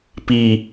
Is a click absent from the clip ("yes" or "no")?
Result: yes